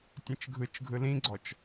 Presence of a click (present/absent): present